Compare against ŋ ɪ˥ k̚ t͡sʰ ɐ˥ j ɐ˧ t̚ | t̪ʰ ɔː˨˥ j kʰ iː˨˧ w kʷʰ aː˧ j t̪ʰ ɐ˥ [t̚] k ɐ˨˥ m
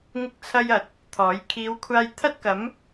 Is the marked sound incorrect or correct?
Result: correct